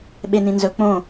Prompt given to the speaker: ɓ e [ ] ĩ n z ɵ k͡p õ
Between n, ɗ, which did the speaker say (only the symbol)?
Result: n